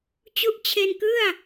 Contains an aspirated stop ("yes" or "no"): yes